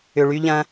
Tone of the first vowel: low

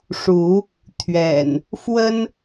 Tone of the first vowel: rising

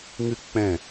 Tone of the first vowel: high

